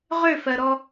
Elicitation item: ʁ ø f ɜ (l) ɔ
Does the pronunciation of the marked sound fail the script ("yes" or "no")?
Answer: yes